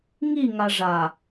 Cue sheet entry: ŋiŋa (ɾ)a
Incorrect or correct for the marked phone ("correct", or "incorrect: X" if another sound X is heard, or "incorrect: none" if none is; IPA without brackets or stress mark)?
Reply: incorrect: ʐ